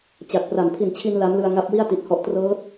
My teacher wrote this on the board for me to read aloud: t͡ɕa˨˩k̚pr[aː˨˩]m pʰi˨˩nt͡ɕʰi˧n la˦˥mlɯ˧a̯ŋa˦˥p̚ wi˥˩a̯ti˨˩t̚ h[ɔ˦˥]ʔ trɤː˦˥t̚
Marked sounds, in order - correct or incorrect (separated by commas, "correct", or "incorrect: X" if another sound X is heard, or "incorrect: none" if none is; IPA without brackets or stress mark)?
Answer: incorrect: a˨˩, correct